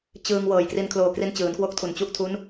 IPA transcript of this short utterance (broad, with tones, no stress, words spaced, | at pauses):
t͡ɕɯː˧ŋ wɤː˨˩jkri˧nkʰloː˧kri˦˥n t͡ɕɯː˩˦nkwo˦˥k̚tʰu˨˩n t͡ɕu˦˥ʔtʰu˦˥n